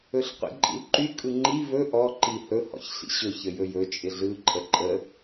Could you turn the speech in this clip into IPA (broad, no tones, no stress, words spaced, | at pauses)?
ɵɬqʷḭǃʼḭlǃy kʼɯŋ͡ǃi vɵ ʔɔ ǃihɵ hɔ̰çɬḭɕɵ çəjɵjɵ t͡ʃʼɪɮɯ ǃʼəǃʼə